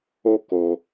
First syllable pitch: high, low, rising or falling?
high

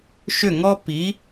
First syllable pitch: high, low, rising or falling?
falling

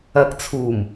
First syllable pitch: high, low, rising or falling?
rising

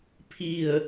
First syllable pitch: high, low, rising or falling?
falling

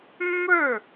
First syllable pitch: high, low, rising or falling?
falling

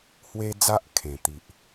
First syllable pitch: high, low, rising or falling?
high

